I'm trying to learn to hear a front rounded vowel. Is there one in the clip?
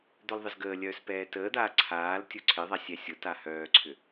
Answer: yes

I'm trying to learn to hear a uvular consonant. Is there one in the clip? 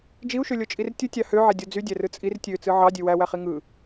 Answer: yes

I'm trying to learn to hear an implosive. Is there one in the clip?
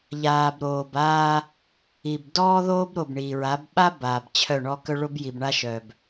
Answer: yes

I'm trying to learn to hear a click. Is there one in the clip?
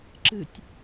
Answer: yes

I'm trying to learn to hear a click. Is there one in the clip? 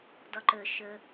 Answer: yes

